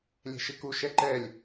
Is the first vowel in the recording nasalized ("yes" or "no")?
no